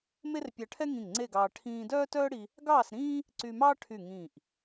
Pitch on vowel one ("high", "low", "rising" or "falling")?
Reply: high